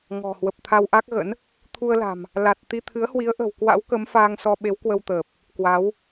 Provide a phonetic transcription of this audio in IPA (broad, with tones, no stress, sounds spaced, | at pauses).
ŋ ɔ̤˨˩ h w ə˨˩ p̚ t̪ʰ a˧ w ʔ a˦˥ k̚ ɣ ə̰˧˥ n | t̪ʰ u˧ ə̯ l a̤˨˩ m | l a˨˩ t̚ t̪ i˧ t̪ʰ ɨ˨˦ ə̯ h w i˨˦ ə̯ ʔ ə̤˨˩ w k w a̰˧˥ w k ə˨˦ m f aː˧ ŋ s ɔ˧ ɓ e˨˦ w k w ə˧ w t̪ əː˨˩ p̚ | k w a˨˦ w